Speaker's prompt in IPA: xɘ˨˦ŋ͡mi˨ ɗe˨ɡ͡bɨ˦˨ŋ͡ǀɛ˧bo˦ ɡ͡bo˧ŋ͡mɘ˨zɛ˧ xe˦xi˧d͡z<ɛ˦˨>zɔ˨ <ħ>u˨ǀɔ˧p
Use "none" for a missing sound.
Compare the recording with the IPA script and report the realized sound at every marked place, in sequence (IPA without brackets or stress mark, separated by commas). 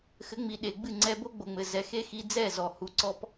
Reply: ɛ˦˨, h